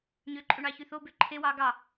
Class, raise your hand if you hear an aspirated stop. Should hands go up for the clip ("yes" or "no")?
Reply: yes